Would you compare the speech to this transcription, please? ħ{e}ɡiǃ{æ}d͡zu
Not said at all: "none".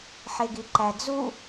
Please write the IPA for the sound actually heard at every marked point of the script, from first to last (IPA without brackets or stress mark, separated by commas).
e, æ